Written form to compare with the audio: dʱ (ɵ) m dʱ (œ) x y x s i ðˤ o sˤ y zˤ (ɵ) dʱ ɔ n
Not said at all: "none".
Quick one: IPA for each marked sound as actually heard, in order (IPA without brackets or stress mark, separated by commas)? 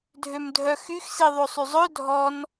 ø, œ, ɵ